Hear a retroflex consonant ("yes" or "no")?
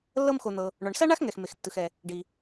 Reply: yes